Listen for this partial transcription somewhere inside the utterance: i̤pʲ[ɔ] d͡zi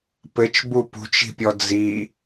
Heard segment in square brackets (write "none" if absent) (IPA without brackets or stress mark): ɔ